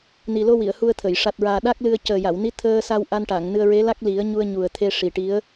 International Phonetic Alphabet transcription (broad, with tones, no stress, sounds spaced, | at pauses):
n i˨˩ l o˧ w i˨˩˨ ə̯ h u˧ ə̯ t̪ʰ ə˨˩˨ j ʂ a˨˩ t̚ ɹ aː˨˩ ɗ a˦˥ k̚ l ɨ˧ ə̯ c əː˨˩ j a˨˩˨ w n i˧˥ t̪ʰ əː˧ s a˧ w ʔ a˧ n ʈ a˨˩˨ ŋ n ɨ˧ ə̯ ɹ e˧˥ l a˦˥ k̚ l i˨˩˦ ə̯ ɲ u˧ ə̯ ɲ u˨˩ ə̯ t̪ʰ e˧ ʂ i˨˩ ʈ i˧˥ ə̯